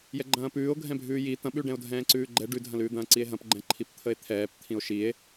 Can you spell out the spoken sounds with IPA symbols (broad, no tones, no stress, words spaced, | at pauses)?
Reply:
jɛɡ͡ǃɐ̃ːpʉːo̯ ɡʱɛ̃bʱʉːji t̪ɐ̃ɓʉɖɛ̃o̯ dʱɛ̃ːǀʉːɡ͡ǃɛ ɖʉdʱɐ̃lʉː d̪ɐ̃ːǀie̯ɦɐ̃p ɡ͡ǃɛ̃ǃʰipt̪ʰəe̯t̪ʰɛːp t̪ʰĩo̯ʃie̯